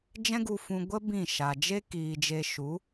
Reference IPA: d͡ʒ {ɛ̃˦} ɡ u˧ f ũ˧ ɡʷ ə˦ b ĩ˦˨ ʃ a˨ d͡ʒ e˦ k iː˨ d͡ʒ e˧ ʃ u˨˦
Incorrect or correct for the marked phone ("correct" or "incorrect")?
correct